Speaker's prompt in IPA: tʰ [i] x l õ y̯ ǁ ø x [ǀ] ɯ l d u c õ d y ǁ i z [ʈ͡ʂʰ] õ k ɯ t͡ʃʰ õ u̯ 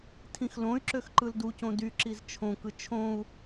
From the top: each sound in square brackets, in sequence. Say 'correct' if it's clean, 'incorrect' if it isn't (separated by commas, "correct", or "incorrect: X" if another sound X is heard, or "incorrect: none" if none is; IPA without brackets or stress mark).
incorrect: ĩ, incorrect: ǃ, incorrect: t͡ʃʰ